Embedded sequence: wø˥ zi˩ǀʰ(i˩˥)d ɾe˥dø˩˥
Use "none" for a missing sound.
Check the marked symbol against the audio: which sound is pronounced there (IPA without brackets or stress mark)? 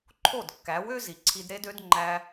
i˧